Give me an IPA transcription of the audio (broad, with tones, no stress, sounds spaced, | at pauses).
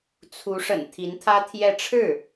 t͡sʰ u˧˥ ʂ ə̰˨˩ n t̪ʰ i˧˥ n t̪ʰ ä˥ t̪ʰ j ɛ˥˧ ʈ͡ʂʰ ɻ̩˥˩